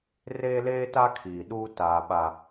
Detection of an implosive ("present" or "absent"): present